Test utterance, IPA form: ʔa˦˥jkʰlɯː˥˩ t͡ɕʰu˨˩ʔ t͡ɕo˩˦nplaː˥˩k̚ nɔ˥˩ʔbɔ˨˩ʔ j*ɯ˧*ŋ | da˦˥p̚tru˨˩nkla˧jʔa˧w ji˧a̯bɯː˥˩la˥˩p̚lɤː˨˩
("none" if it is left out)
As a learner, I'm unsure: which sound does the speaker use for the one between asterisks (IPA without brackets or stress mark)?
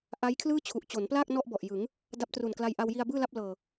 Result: ɯ˩˦